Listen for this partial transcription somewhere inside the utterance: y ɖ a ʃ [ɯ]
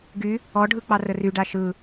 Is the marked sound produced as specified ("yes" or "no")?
yes